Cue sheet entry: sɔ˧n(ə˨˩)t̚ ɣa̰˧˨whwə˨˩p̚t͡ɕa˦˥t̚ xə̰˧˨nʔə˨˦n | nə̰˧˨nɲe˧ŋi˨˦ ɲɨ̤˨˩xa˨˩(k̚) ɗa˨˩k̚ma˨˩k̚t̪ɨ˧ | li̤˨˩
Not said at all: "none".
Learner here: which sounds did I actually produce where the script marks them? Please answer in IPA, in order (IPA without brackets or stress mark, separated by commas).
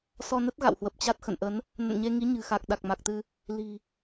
ə˦˥, k̚